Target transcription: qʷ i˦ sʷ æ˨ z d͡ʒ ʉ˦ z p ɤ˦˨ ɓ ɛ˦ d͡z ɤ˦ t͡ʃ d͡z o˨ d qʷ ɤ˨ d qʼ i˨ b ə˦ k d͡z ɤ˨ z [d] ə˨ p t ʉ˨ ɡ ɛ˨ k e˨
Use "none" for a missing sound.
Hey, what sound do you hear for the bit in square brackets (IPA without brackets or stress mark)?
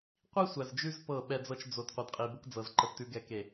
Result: ǃ